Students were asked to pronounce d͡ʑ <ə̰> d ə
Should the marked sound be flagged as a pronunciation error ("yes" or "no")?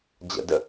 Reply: no